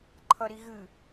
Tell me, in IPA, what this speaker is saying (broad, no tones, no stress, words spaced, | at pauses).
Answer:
ǃʰʌɾiɣɨ